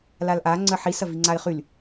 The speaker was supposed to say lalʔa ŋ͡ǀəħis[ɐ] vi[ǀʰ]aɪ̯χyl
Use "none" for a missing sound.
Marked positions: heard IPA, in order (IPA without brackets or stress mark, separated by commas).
ɐ, ŋ͡ǀ